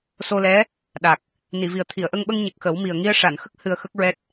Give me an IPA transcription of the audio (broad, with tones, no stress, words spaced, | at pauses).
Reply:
so˧lɛ˧˥ | ɗa˨˩k̚ | ni˨˩˨vi˨˩ə̯ t̪ʰi˨˩˨ə̯ʔə˧ŋɓə˧ŋ ɲə˨˩k̚ xə˨˩˦wmi˨˩ə̯ ŋi˧ə̯ʂa˨˩˨nxə˦˥k̚ hɨ˧ə̯xə˦˥k̚ɹɛ˦˥t̚